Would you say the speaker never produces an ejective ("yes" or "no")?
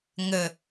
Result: yes